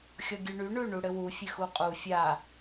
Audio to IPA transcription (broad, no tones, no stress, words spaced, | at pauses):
xʲɔɡʲʉɳy ɳʉ ɳuɽɘwu fʲɘxuqʼu fʲa